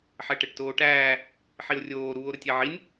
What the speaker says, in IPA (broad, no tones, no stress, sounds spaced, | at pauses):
ħ ɛ ʈ ɛ ʈ t oː ʈ æː | ħ i o̯ rʲ oː ɾ uː o̯ ɾ ə tʲ ɛ ʕ i nʲ